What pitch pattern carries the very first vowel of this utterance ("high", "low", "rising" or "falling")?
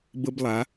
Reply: high